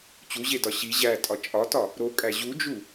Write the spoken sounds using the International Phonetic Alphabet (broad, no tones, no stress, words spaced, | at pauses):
t͡ɕuʑedɒ ɕi ʑætʼɒ t͡ʃʼɒtɒ | ɾokʼæ ʑud͡ʒu